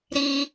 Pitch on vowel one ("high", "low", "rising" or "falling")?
high